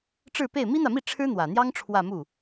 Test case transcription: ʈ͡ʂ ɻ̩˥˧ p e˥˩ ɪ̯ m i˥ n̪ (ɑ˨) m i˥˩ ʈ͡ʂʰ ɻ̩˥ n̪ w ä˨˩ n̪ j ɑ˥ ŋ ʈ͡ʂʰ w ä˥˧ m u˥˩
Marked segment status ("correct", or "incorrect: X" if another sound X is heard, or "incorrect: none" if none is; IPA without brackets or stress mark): incorrect: ä˨